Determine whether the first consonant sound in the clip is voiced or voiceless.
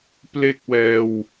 voiceless